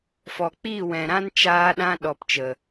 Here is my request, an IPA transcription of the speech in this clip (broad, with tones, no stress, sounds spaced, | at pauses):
f ɔ˨ k͡p iː˦˨ w ɛ̃˨ ɾ ã˦ n t͡ʃ aː˧ ɗ ã˧ ɗ ɔ˨ p t͡ʃ ə˨